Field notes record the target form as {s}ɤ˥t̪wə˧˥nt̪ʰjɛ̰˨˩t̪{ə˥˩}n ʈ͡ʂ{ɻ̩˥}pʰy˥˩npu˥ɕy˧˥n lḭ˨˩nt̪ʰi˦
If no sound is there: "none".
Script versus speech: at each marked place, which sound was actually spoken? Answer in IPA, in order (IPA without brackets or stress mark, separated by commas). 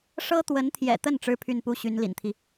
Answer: ʂ, ə˥˩, ɻ̩˥